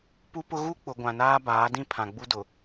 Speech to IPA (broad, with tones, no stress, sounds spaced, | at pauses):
p u˦ p ʊ˦ ɣ u˦ k͡p ʊ˨ ɡʷ ã˨ n aː˦ b aː˨˦ d ĩ˦ pʰ ã˨ ɡ͡b u˦ d ʊ˨